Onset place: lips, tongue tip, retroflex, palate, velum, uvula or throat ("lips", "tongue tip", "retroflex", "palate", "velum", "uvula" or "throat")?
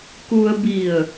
velum